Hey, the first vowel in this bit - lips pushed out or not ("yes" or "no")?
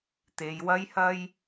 no